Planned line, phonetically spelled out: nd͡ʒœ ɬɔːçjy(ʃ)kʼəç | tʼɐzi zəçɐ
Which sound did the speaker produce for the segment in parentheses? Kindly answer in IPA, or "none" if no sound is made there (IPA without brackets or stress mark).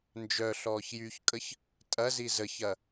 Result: ç